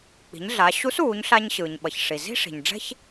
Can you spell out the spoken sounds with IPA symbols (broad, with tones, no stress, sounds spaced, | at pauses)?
k͡p i̤˩˧ ɲ ɮ a˩˧ ɕ u˧˥ s uː˩˧ ɲ ɬ a˧ ɲ ɕ ɯː˩ ɲ ɓ ʌ˩ ç ʂ i˩ z i̤˥ ʂ i̤˩ ɲ ɖ͡ʐ ɛ̤˥ ç